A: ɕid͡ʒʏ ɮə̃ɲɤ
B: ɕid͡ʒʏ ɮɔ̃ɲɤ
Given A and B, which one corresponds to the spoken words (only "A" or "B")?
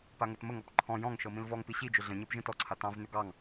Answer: A